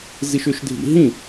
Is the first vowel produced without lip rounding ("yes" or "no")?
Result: yes